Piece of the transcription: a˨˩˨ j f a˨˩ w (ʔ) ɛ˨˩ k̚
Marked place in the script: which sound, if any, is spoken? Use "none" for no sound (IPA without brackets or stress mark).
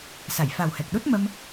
h